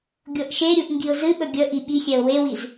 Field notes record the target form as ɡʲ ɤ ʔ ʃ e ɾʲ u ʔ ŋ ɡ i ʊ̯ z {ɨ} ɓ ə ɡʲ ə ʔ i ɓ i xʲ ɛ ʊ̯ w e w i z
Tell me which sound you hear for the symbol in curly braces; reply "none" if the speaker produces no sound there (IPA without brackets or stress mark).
ɨ